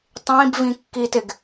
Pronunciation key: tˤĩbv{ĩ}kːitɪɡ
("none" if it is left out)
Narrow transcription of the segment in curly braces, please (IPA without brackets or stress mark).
ĩ